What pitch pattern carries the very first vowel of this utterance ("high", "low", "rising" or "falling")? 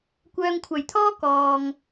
low